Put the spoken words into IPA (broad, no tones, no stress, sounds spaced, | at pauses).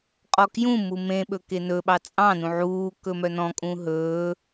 qʼ ɔ k j ũ m u m ẽ ɓ ɵ k e n ɵ ɓ ɑ t͡sʼ ɑ̃ n ũ ʕ uː k ɵ m œ n ɔ̃ kʼ ũ ɦ ɵː